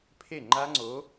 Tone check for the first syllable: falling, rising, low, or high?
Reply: falling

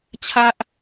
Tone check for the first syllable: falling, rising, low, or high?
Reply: high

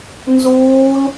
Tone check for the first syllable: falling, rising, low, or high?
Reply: high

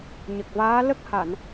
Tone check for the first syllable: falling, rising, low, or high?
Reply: low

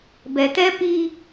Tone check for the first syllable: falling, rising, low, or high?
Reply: low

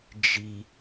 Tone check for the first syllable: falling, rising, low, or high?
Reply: high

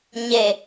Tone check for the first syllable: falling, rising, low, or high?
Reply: low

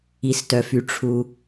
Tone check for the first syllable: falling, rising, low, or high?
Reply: low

